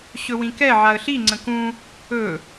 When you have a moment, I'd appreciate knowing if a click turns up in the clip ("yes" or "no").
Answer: yes